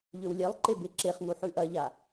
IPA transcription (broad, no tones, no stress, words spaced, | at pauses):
ʎɵwlʲelˠǃe beǁeχŋu ħʉʔɐʎa